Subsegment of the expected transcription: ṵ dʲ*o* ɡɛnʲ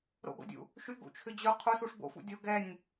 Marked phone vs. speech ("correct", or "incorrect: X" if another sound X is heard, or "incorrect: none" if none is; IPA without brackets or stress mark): correct